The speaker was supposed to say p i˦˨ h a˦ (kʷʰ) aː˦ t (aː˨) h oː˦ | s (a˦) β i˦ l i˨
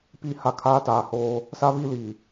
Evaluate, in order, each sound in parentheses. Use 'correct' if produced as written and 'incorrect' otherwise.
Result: incorrect, correct, correct

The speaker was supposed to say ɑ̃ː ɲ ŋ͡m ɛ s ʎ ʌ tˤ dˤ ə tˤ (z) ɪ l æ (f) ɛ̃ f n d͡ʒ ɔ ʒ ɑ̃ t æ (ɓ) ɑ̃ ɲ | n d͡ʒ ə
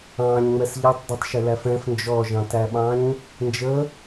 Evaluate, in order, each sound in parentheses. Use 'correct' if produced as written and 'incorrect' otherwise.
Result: incorrect, correct, correct

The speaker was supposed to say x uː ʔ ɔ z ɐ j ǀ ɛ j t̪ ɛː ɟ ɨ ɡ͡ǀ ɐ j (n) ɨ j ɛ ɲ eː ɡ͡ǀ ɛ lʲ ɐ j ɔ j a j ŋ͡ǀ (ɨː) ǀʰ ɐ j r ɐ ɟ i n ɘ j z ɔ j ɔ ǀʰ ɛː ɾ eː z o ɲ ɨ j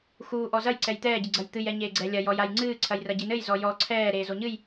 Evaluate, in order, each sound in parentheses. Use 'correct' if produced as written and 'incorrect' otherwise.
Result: incorrect, correct

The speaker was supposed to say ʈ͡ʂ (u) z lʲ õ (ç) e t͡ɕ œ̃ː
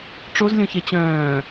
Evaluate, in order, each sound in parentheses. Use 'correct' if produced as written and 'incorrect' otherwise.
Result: incorrect, correct

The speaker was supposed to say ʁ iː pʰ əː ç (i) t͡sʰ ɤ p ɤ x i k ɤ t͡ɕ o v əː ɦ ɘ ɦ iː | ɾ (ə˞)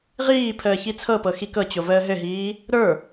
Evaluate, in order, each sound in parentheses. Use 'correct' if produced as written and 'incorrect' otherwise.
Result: correct, correct

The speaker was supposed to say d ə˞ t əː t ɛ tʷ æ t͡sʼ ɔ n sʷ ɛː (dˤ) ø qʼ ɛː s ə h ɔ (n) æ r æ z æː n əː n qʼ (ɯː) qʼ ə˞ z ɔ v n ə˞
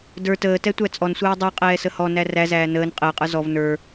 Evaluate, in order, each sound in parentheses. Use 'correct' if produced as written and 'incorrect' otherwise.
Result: correct, correct, incorrect

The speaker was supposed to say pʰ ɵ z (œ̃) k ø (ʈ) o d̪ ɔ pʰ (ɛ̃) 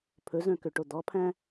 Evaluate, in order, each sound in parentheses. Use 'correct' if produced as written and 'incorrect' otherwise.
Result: correct, correct, incorrect

